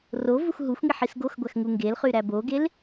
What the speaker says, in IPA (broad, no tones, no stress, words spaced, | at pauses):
ro vuxɦuxʷŋi ħisɡoxɡʷæx ŋuŋɡelχy ɾæboɡel